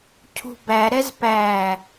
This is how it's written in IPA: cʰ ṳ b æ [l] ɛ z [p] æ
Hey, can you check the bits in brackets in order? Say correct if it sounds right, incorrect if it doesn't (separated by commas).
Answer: incorrect, correct